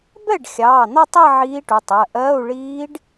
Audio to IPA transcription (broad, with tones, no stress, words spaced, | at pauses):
bɛ˥˩ɖ xʲɑː˩˧˩n̪ɒ˥˧tˤɛ˥˧ ʕiː˦˥ʈu˩˧˩tˤɜ˩˧˩ ʔɜː˧˥˧u̯ ɭiː˦˥ɖ